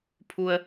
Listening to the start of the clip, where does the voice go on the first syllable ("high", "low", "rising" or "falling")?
low